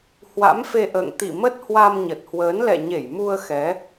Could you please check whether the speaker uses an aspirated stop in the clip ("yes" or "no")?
no